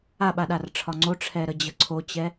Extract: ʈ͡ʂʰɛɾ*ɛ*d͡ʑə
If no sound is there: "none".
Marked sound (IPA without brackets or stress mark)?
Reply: ə